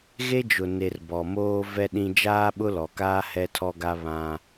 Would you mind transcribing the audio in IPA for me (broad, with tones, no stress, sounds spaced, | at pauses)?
ɣ e˦ d͡ʒ ʊ˨ n e˨ r b ɔ˨ m oː˦ v ɛ˦ ɗ ĩ˦ d͡ʒ aː˦ ɓ ʊ˦ l ɔ˨ k aː˦ h ɛ˦ tʰ ɔ˦ ɡ a˦ β ã˦